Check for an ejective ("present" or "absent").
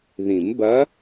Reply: absent